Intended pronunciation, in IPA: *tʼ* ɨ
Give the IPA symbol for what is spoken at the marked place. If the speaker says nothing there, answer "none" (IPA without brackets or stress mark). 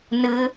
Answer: n